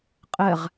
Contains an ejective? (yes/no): yes